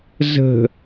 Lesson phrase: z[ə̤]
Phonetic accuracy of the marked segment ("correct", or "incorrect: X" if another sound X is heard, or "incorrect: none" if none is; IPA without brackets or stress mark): correct